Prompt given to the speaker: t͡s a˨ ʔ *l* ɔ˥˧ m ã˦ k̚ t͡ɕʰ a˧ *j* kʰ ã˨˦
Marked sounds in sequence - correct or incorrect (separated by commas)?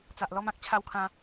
correct, incorrect